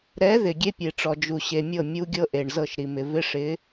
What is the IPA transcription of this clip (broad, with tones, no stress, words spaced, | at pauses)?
ɾɛ˨˦ ðɪ˨ ɡʲe˦pʲe˨ʈ͡ʂɔ˨ d͡ʒu˨ɕe˨mʲɤ˦˨ mʲu˦ɡʲɤ˦ ʔe˨ɳzɤ˦˨ʃɾi˨mɪ˨ vɪ˦ʂɪ˨˦